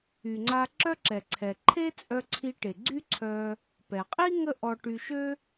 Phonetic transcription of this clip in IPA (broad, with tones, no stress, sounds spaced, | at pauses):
y˩ ŋ͡ǀ a˧ ǁ œ˥ ǁ ɛ˩ ǀʰ ɛ˩ ǃʰ e˥ t͡sʼ œ˧ ǀʰ i˧ ʈ e˩ ɡ͡ǀ y˥ ǀʰ œ˧ | p ɛ˩ qʼ i˥ ŋ ə˥ ʔ ɔ˧ ʈ y˧ ʃ ø˥